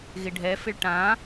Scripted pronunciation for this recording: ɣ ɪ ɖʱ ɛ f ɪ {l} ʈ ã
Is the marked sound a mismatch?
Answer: yes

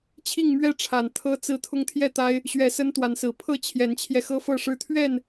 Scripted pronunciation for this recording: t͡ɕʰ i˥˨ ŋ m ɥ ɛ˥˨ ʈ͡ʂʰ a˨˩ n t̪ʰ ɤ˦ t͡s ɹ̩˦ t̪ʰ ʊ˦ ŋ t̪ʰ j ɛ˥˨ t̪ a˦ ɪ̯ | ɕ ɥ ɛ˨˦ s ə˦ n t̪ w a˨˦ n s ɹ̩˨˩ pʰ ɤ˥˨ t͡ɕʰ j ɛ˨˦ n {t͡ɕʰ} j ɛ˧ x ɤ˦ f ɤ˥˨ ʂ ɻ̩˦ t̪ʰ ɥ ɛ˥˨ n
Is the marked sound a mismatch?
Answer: no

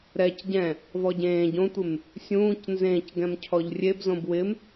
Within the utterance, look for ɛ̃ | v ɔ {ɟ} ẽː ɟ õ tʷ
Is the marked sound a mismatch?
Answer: no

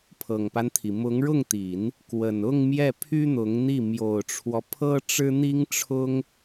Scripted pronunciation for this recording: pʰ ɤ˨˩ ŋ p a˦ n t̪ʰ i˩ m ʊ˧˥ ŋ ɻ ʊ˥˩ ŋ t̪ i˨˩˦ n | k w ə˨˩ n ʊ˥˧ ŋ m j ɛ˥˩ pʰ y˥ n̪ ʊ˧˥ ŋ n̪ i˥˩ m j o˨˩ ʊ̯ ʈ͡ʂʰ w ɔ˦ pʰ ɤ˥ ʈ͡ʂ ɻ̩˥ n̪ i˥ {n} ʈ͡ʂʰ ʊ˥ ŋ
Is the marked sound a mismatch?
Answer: yes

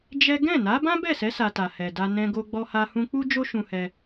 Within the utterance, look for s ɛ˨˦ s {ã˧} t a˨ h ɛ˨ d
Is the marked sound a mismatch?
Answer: yes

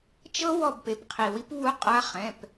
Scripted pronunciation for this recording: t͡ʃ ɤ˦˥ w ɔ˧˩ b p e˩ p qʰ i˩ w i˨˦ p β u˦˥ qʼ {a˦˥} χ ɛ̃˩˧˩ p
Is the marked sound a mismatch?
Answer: no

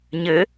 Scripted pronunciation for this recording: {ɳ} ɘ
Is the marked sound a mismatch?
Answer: yes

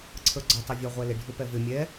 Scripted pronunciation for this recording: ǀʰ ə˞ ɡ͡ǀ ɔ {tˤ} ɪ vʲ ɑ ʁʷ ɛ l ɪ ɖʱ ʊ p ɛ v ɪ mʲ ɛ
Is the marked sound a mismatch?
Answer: no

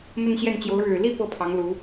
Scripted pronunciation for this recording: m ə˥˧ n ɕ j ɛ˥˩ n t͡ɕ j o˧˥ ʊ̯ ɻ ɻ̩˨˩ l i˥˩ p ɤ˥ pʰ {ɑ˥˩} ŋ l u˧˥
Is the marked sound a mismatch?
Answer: yes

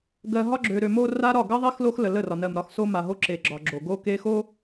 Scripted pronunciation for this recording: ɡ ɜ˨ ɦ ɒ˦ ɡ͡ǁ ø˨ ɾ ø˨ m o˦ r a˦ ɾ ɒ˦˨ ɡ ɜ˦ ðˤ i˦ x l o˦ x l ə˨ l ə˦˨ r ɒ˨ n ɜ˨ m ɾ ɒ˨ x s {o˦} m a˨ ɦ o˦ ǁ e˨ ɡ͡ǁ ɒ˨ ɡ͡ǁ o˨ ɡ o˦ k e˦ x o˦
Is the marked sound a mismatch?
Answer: no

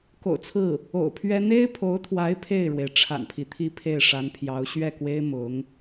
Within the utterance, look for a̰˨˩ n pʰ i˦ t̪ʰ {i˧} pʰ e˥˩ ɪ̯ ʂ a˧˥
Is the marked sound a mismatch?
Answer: yes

